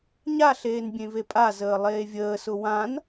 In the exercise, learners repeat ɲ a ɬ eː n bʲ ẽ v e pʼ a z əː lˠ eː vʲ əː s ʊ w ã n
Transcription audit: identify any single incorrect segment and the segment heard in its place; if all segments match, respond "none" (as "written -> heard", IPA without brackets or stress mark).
none